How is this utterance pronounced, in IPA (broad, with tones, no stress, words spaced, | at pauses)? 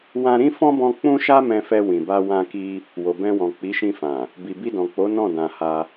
wã˧ɾĩ˦fɔ̃˦bɔ̃˧ k͡pũ˦ʃa˦ mɛ̃˧fɛ˧wĩ˨ba˧ wã˧ki˧ | wo˨bɛ̃˧wɔ̃˨ k͡pi˨˦ʃĩ˧fã˨ | bi˨bi˧dɔ̃˨k͡po˨˦ nɔ̃˦˨dã˨ ha˧